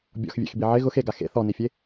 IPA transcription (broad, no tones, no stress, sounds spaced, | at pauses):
bʲ ɔ̰ x vʲ ḛ x b i ʕ ɪ ɣ ʊ x e ɡ a x ḛ θ ɔ n i fʲ e